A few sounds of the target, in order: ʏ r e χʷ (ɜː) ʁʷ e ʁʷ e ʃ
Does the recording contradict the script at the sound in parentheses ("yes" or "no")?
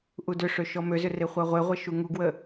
yes